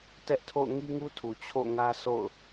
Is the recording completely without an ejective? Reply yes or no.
yes